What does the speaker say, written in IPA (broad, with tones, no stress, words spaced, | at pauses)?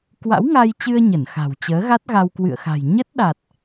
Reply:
kwa̰˧˥wŋa˧jt͡ɕɨ˧ə̯ ɲə˧˩nxa̤˨˩w t͡ɕəː˨˦ɣa˦˥t̚ɣa˧w kwɨ̰˧˨ə̯xa̤˨˩j ɲə˦˥t̚ɗa˨˩t̚